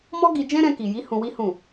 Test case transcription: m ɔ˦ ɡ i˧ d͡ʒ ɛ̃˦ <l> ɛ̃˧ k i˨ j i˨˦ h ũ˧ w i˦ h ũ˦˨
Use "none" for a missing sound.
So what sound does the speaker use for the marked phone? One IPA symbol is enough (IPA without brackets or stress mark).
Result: ɾ